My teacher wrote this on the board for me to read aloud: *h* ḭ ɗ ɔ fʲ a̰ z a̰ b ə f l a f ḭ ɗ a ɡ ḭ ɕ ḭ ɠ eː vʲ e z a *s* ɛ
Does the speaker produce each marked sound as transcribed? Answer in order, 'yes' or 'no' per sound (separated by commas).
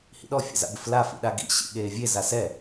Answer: yes, yes